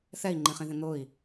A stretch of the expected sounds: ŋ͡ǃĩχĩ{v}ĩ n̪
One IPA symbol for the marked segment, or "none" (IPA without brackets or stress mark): ð